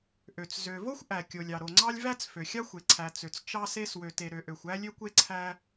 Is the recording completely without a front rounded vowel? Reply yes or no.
no